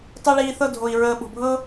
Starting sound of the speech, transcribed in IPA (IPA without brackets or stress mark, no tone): tˤ